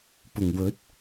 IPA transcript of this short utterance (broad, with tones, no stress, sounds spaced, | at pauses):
p ʊ˨˩ ŋ w ɵ˨˥ t̚